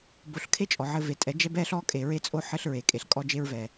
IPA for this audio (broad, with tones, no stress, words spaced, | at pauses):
bo˨ɬkʰe˦ t͡ʃʼɔ˨ʕɘ˦ve˨˦ tʼɛ˨˦d͡ʒɛ˦bɛ˦ɬɔ˦ kʼe˨ɹe˦t͡sʼo˦ ħɘ˦ɬ ɹe˨kʼe˨ɬ kʼɔ˦d͡ʒe˦ɹvɛ˨